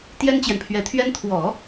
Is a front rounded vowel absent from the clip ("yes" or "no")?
yes